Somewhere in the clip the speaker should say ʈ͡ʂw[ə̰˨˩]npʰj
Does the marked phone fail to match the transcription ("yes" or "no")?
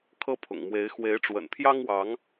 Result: no